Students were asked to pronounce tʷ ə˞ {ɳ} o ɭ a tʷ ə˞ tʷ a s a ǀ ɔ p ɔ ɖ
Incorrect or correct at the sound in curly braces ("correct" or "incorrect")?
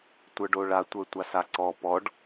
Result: incorrect